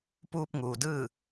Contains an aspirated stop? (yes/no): no